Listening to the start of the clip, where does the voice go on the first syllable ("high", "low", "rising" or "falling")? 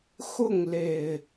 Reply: falling